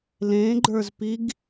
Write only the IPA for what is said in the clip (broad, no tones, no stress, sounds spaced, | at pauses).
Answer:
l ẽ ɡ͡ǃ ə˞ z p i ɡ